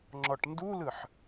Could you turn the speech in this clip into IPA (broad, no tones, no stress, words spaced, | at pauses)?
ŋ͡ǁɔʈndulɯħ